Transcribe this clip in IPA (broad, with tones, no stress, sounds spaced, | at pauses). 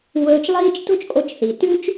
w ɵː˧ t͡ʃ lˠ iː˥ t͡ʃ t o̤˥ t͡ʃ kʼ o˧ t͡ʃ θ i˩ t ʉ˥ t͡ʃ